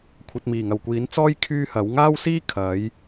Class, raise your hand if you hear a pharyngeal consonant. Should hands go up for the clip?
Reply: no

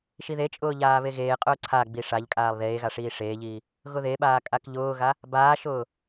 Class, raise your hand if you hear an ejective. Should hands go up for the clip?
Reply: yes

